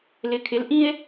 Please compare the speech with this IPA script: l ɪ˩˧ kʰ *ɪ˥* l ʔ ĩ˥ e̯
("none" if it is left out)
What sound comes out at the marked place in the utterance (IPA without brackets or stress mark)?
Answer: ɪ˩˧